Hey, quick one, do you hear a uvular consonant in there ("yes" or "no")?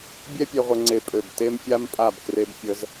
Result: yes